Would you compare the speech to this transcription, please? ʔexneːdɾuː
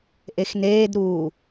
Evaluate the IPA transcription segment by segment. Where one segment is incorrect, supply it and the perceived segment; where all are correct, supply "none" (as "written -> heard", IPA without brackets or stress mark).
none